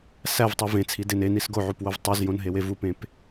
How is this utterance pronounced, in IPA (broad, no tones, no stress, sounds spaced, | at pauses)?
s æ v tˤ i v ẽ t͡sʰ i d e n e n i s ɡ o ʕ u p w o v tˤ u z j õ n ɦ e w e v u p ẽ p